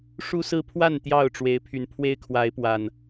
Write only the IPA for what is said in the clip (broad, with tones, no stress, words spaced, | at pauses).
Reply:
ʂu˦sɹ̩˦pʰwa˥˨n t̪jɑ˥˨ʊ̯ʈ͡ʂwe˨˦ɪ̯ pʰy˨˩n pʰwe˦ɪ̯kʰwa˨˦ɪ̯pwa˨˩n